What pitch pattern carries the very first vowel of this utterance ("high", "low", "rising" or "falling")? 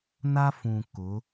high